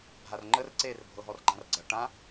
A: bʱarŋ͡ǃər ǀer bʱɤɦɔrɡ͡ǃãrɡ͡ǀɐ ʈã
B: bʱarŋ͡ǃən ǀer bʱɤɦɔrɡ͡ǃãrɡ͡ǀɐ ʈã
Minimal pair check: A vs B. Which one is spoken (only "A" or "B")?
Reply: A